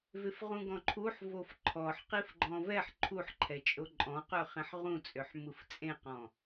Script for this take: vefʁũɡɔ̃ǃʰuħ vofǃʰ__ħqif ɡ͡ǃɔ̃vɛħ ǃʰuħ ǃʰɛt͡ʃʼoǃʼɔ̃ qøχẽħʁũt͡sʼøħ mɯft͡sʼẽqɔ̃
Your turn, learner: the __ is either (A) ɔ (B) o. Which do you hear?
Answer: A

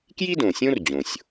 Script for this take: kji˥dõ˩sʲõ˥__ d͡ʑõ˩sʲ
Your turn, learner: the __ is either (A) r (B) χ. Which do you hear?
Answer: A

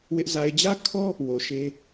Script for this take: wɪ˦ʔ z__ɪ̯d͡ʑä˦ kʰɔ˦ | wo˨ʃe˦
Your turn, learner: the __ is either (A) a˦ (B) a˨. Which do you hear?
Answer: B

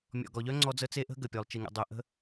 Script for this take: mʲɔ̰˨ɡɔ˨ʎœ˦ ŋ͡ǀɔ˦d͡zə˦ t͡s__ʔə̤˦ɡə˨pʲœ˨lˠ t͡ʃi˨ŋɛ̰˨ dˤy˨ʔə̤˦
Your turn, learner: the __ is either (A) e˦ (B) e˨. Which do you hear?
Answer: A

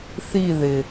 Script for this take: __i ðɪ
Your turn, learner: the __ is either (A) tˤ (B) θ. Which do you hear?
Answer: B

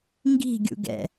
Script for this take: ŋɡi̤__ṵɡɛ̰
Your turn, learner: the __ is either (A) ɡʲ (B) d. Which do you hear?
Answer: A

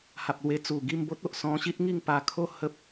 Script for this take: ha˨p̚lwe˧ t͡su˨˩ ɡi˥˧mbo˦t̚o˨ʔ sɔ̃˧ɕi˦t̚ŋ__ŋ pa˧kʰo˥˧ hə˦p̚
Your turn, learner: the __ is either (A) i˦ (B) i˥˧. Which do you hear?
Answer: B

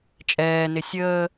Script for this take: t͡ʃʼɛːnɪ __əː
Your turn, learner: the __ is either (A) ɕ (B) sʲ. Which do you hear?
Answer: B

